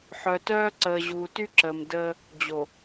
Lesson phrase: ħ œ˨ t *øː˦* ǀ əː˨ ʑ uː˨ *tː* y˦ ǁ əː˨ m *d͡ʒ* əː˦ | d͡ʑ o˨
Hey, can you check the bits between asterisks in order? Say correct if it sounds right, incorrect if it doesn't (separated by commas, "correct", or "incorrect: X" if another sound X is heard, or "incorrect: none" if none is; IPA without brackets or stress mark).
incorrect: œː˦, incorrect: t, incorrect: d